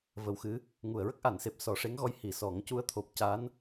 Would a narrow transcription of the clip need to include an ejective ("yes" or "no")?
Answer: no